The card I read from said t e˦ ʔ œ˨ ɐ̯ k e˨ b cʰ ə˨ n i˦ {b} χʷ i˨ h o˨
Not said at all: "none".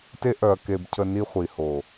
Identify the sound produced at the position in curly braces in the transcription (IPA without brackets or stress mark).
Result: none